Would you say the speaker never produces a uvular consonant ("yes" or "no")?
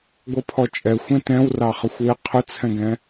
no